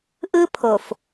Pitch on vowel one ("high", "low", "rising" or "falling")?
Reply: high